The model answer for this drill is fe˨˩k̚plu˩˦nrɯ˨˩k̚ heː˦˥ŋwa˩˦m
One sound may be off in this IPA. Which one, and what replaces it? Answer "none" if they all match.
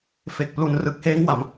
none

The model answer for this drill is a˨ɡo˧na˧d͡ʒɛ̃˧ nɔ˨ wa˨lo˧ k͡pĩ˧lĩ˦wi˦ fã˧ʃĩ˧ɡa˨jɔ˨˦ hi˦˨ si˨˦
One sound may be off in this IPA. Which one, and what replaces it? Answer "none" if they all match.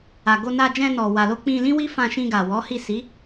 j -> w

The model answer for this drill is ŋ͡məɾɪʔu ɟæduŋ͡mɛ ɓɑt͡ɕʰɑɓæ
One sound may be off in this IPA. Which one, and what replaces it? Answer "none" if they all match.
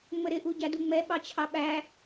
none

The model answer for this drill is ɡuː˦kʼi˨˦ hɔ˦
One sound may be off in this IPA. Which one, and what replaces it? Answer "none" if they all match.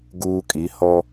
none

